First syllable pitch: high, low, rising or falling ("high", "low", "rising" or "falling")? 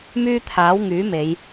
high